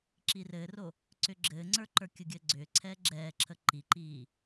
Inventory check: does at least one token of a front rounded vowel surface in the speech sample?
yes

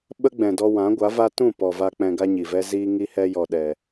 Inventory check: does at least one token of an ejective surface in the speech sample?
no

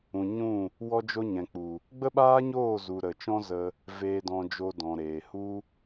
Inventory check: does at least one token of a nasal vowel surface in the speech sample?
yes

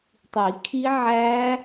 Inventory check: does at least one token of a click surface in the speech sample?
no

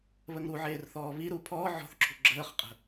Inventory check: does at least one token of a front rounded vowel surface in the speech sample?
no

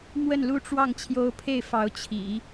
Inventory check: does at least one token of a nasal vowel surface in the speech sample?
no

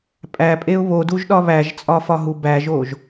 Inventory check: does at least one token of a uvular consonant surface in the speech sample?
no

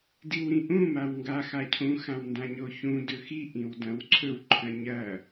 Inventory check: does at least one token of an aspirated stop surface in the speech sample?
yes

